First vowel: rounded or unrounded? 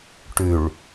rounded